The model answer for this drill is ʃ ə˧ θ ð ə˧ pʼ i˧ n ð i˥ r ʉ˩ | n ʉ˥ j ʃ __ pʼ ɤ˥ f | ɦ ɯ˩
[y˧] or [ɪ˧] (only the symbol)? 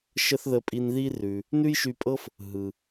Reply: y˧